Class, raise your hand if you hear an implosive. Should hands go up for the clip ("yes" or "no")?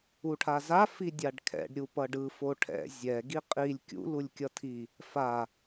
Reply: no